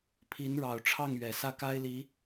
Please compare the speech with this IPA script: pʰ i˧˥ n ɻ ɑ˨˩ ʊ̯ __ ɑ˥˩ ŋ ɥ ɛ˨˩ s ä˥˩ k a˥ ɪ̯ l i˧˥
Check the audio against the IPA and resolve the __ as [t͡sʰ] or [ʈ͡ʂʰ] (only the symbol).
ʈ͡ʂʰ